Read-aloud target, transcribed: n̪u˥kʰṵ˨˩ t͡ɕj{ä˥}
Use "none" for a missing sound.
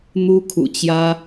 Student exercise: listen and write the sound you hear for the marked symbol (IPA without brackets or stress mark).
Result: ä˥